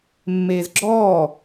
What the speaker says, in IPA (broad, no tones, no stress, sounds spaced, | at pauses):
mː eː z ɡ͡ǁ ɔː